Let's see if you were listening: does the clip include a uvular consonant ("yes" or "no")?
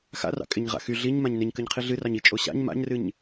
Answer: yes